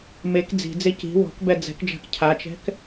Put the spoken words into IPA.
mek d͡zi̤d͡ze ci̤ wɔ̤kbɛ d͡zɛ̤kd͡ʒa̤k cʰat͡ʃɛ̤k

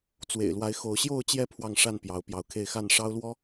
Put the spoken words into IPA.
t͡swḛ˨˩ɪ̯lwa˨˦ɪ̯ xo˨˦ʊ̯ ɕjo˥˨ʊ̯t͡ɕjɛ˥˨ pʰwɑ˥˨ŋʂa˥˨n pjɑ˨˦ʊ̯pjɑ˨˦ʊ̯kʰe˥˨ɪ̯ xa˥˨nʂɑ˦ʊ̯lwɔ˦

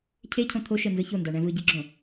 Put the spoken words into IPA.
cʰecʰõ t̪ʰoʃɛnzɯ çondaɳɛ̃ vɯɟiɡ͡ǁõ

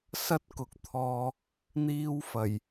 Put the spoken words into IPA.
sɐ˥t̚kʊ˨k̚t̪ʰɔː˧ | n̪iː˥w fɐ˨˩j

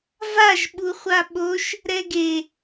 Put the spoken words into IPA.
vaʒ ɓuχʷaɓoʃ | ɾɛɡe

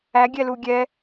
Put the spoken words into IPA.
æɡʲɛlu ɡʲɛ

